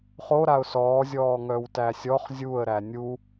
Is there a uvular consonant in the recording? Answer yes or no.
yes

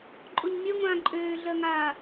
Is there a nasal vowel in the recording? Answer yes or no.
yes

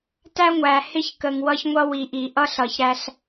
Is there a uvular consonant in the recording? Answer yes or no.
no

